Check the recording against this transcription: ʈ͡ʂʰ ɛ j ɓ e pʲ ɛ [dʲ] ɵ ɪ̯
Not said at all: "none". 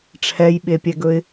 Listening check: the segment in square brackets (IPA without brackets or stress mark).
ɡ